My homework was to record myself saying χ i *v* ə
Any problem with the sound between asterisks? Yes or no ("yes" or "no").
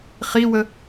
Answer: yes